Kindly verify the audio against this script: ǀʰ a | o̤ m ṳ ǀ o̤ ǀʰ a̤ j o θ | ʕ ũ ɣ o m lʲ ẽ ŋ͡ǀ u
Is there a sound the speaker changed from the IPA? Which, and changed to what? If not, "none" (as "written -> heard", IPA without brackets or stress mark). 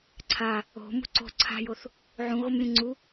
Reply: none